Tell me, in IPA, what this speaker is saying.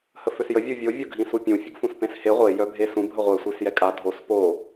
h ə f ø s j ə vʲ u vʲ o vʲ o ɡʱ ĩ s u pʲ ũ fʲ ə ɡ f ũ s p ẽ s h e ʁʷ e j œ bʱ e s ũ bʱ ə ʁʷ ɛ sʷ i s j ɛ kʼ a dʱ o s p o

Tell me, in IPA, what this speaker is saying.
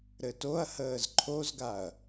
ɾ ɘ t o ɐ̯ h əː z ǃʰ o z ɡ a ɐ̯

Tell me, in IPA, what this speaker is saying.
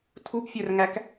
tʰ u b fʲ œ r ŋ æ k

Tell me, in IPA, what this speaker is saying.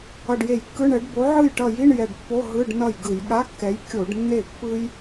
ʌ˧˩ ɖ j e˧˩˧ j kː ɯ˧˥˧ ɳ ɛ˨˥ ɖ b o˨˥ ʕ ɯ˥˩ j ʈ ʌ˧˩ j i˧˥˧ ɳ j ɛ˧˩ ɖ pː o˧˥˧ ɦ ɯ˧˥˧ ɖ n ʌ˥˩ j ɡ ɯ˧˩˧ j ɠ a˧˥˧ kː ɛ˨˥ j kʲ o˧˩˧ ɖ nː e˥˩ pː ɯ˥ j

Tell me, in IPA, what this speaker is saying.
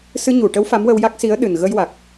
s ɨ˧ ɲ u˨˩˨ ʈ ə˧˥ w f a˧˥ m w ə˧ w j a˦˥ k̚ s i˧˥ ə̯ ɗ ɨ˨˩ n ɣ ə˧ j w a˨˩ k̚

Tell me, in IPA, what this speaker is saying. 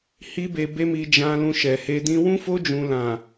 h i˦ b e˧ b e˦ m i˧ d͡ʒ ã˧ l ũ˧ ʃ ɛ˨ h e˧ d ĩ˦ w ũ˦ f o˦ d͡ʒ ũ˧ l ã˨

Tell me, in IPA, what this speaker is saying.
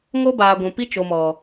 ŋ o˦ b aː˨ ɡʷ ũ˨ p i˦ t͡ʃ o˨ m ɔ˨

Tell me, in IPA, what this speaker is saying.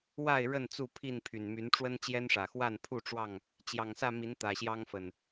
w a˥˨ ɪ̯ ɻ ə˥˨ n t͡s u˥˨ pʰ i˥˨ n pʰ y˨˩ n m y˨˦ n ʈ͡ʂ w ə˦ n t͡ɕ j ɛ˦ n ʂ ä˨˩ x w a˥˨ n pʰ u˥˨ ʈ͡ʂ w ɑ˥˨ ŋ | t͡ɕ j ɑ˨˩ ŋ s ä˥˨ m i˨˦ n t̪ ä˨˩ ɕ j ɑ˦ ŋ f ə˨˩ n

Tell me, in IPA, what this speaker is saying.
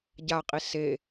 ɟ a qʼ i s e

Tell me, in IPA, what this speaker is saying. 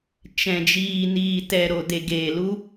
t͡ʃ ɛ̃˨ d͡ʒ iː˨ n iː˨ t ɛ˨ ɾ o˨ d e˨ ɡ eː˨ l u˦

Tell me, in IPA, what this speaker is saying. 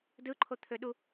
d ɯ ǃʰ o t̪ʰ ø ɗ u

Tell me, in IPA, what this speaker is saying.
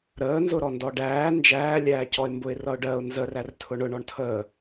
ɾ əː n z ʊ ɾ ɔ n d ɔ ɖ æː n d͡ʒ æː lʲ æː c ɔ ɪ̯ m b ʊ ɪ̯ r ʌ ʊ̯ ɖ ɜ ʊ̯ n z ə r æ r tʰ ʊ ɳ ʊ ɳ ɔ ɳ tʰ əː

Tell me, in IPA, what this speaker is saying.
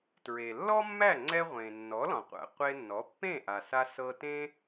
t ɹ e˩ lː ɔ˥ mː æ˥˩ ŋ͡ǀ ɛ˧ ʁʷ ẽ˩ nː ɔ˩˥ l ɔ̃˩ qʷ æ̰˩ qʷ e˧ nː ɔ˩˥ pː ẽ˥˩ ʔ a˩ s a˧ s ɤ˧ t ẽ˥

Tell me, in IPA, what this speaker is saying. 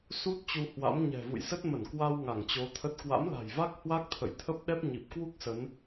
s u˦˥ t̚ t͡ɕ u˧ h w a̰˧˥ m ɲ ɛ̤˨˩ v ṵ˧˨ j s ə˦˥ t̚ m ə˧˩ n k w a˧ w ŋ a˧˩ ŋ t͡ɕ o˨˦ t̪ʰ ə˦˥ t̚ k w a̰˧˥ m l a̤˨˩ j v a˦˥ k̚ h w a˦˥ k̚ t̪ʰ ə̰˧˨ j t̪ʰ ə˦˥ p̚ ɗ ɛ˦˥ p̚ ɲ i˨˩ p̚ k w u˦˥ k̚ s ə˨˦ n

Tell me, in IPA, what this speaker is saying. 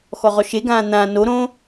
x ɔ ʁ ɔ ʃ e ɡ ãː n̪ ã n o ɾ õ

